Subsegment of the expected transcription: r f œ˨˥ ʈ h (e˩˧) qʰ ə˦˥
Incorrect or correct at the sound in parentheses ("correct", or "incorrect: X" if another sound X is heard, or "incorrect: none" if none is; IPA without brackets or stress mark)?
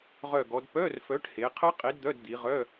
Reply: correct